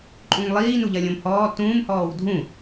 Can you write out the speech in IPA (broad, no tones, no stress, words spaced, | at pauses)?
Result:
ǃʼũŋlˠiː nuʎɐlʲõmhɔː tũːmhɔːw dʱũ